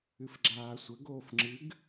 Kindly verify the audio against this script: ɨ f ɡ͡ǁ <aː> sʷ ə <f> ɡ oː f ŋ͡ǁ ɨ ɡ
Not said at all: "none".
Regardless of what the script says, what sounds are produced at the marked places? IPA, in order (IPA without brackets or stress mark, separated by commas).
aː, none